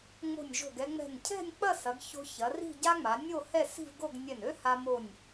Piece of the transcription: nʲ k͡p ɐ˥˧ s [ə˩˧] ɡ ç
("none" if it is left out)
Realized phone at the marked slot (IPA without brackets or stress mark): ɐ˩˧